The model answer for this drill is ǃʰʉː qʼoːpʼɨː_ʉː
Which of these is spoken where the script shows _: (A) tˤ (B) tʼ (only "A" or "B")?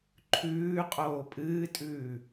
B